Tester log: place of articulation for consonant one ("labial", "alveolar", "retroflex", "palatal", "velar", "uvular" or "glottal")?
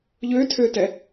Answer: palatal